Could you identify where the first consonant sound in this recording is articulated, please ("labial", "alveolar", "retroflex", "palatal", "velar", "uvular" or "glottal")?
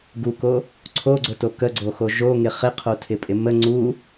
velar